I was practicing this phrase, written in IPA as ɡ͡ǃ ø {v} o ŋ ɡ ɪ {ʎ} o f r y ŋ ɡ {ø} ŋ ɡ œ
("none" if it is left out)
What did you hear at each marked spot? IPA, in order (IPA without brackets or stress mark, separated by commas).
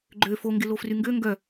f, l, ø